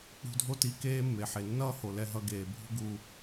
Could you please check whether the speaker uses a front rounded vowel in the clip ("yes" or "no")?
no